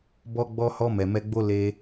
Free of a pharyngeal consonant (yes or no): yes